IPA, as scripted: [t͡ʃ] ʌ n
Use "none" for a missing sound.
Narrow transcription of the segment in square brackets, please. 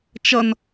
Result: t͡ʃ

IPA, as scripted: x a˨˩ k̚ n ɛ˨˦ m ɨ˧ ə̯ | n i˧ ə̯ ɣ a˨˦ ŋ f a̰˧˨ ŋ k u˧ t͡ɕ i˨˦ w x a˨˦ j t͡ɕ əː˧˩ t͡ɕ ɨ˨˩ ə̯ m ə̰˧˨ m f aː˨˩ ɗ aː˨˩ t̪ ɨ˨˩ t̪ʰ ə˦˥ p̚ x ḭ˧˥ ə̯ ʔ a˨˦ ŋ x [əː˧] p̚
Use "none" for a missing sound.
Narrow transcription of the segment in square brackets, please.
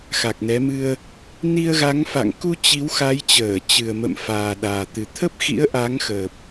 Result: əː˨˩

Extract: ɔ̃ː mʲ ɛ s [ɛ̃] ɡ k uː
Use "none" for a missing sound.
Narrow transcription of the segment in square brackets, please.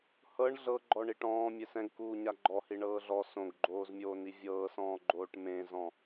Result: ɛ̃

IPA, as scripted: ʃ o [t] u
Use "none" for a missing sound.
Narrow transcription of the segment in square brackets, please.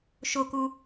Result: k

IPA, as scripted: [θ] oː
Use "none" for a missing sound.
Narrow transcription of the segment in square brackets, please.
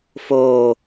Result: f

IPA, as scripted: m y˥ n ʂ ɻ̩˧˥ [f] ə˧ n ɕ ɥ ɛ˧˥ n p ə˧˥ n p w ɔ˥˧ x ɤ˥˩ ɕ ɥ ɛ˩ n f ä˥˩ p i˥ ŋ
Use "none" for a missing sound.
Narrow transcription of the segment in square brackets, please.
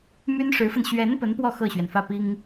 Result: f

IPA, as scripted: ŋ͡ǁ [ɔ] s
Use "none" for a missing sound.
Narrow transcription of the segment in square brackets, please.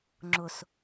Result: ʊ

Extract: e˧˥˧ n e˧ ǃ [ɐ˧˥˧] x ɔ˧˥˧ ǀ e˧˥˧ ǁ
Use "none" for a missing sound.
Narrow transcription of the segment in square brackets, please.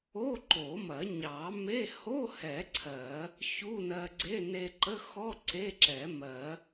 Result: ə˧˥˧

